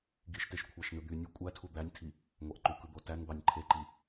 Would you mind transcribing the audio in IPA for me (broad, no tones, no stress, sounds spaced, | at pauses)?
ɡ i ʃ t e ʃ kʷʰ ɑ ʃ n ɯ d̪ y nʲ u kʷʼ æ tʰ u d̪ æ nʲ tʰ i | ŋʷ ɑ ʔ ǃ u k ɯ d̪ o t æ n d̪ ɑ nʲ ǃʰ e ǃ i